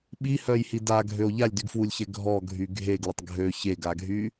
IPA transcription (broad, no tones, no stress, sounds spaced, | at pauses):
ɓ i h œ j h i d a ɡʱ ø o̯ ʎ a lʲ d y ɡ f w u lʲ ç ɛ ɡʱ ɔ ɡʱ y ɡʱ e ɡ l ə tˤ ɡʱ ø ç e ɡ a ɡʱ y